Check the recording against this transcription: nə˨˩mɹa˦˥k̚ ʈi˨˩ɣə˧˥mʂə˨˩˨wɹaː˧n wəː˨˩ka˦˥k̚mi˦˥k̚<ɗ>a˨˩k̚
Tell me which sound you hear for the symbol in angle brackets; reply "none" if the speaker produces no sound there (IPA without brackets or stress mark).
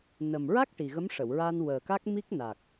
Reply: n